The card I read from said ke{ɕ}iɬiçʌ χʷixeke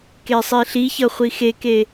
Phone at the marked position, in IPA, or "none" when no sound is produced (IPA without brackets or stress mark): sˤ